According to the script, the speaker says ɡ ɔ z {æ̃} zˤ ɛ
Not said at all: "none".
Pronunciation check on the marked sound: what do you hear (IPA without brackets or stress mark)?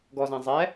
æ̃